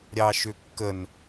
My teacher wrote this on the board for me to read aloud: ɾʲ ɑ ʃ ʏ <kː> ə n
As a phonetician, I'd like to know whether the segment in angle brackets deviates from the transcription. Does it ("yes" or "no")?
no